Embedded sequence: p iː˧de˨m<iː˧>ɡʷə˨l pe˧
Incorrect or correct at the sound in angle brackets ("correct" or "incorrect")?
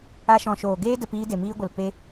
correct